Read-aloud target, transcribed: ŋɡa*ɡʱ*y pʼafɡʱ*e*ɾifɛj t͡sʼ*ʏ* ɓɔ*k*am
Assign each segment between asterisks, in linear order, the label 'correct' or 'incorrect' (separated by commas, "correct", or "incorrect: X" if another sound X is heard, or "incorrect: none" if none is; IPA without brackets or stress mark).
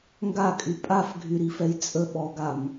incorrect: kʼ, incorrect: y, incorrect: ə, incorrect: ɡ